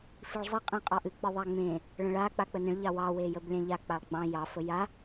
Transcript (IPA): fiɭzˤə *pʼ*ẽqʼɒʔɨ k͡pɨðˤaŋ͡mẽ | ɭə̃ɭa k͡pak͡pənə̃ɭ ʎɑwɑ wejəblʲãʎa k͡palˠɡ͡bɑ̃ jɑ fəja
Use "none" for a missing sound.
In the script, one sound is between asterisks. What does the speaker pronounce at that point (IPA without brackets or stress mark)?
qʼ